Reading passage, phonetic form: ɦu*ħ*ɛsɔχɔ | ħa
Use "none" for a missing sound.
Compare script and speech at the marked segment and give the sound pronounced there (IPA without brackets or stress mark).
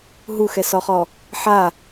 x